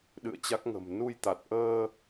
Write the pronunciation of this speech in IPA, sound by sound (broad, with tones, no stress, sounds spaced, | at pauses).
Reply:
ɗ ɨ̰˧˨ ə̯ t͡ɕ a˦˥ k̚ ŋ ə̤˨˩ m n u˧ j t̪ a˨˩ t̚ ʔ əː˧